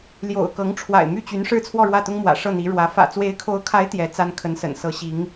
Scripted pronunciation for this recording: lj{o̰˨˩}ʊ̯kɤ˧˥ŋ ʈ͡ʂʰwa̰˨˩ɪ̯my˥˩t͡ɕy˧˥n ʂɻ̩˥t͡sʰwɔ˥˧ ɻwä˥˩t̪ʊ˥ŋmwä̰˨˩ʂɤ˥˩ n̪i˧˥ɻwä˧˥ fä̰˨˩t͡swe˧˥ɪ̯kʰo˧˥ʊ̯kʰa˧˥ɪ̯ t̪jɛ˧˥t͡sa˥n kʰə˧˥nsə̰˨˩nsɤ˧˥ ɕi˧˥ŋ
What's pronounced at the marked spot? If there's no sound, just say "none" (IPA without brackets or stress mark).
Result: o̰˨˩